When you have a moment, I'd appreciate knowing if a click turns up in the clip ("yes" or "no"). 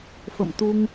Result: no